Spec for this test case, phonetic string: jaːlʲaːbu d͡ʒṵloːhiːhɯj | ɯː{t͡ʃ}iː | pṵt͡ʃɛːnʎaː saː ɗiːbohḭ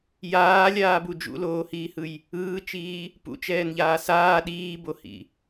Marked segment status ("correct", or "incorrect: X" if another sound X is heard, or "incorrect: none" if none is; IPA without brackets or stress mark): correct